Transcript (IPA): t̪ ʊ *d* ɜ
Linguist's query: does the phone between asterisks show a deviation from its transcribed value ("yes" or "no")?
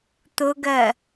yes